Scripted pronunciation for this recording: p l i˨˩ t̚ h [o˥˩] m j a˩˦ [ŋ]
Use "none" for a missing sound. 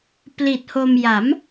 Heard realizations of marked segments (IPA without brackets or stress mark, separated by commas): o˧, m